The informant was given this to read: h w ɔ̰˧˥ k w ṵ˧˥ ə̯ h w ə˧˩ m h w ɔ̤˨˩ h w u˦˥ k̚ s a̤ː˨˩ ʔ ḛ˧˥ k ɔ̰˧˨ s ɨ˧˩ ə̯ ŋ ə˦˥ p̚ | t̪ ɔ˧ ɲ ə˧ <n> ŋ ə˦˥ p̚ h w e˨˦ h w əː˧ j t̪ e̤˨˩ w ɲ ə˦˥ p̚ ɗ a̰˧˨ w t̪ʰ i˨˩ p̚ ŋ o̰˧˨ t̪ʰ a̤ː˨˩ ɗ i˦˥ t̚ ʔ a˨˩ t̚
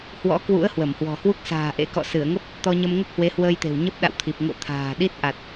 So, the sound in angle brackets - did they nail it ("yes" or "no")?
no